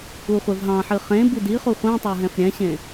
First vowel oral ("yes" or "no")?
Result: yes